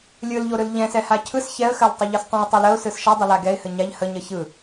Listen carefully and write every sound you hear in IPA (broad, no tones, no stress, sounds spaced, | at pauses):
lʲ ɯ l ʎ o ɾ ɯ l ʎ ɛ̃ s ɛ h a cʰ ɯ s ç ɛ ə̯ x ɜ l tˤ ɯ ʎ ɯ s tˤ ĩ ə̯ tˤ i l ɜ ʊ̯ s ɯ s ʃ ə dˤ ɜ l a ɡ ɛ ɪ̯ h ɘ ɲ a ʎ h ə ɲ ɜ ç ɯ